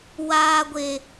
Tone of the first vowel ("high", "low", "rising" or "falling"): high